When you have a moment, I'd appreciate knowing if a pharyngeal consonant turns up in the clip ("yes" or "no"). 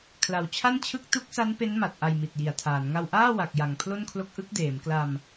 no